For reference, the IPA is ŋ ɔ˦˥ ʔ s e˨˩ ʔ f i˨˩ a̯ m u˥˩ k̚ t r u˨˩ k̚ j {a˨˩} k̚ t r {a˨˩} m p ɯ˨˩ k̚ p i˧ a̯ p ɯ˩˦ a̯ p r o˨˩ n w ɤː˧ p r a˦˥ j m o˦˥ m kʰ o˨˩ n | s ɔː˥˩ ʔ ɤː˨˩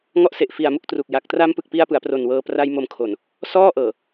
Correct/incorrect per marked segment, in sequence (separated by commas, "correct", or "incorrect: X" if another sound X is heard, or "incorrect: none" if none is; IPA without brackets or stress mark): correct, incorrect: a˦˥